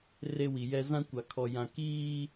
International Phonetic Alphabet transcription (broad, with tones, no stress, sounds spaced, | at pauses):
r e˦ w i˨ j ɛ˦ z ã˦ kʷ a˨ kʰ ɔ˨ j ã˨ k iː˦